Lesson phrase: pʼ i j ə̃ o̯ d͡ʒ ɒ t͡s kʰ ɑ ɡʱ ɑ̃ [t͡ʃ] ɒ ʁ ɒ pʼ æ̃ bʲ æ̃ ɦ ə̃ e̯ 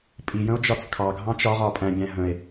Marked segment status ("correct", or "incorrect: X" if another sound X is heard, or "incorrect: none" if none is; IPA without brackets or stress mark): correct